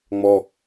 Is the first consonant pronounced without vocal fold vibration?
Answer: no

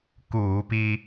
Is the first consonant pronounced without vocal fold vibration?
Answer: yes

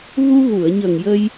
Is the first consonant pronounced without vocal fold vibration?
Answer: no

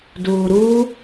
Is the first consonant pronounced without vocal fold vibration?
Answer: no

